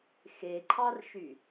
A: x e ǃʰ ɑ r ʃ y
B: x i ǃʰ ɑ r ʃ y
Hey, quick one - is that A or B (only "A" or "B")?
A